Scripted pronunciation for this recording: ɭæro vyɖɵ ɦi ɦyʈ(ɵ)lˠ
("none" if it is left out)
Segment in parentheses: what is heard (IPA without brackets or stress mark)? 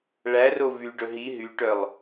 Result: œ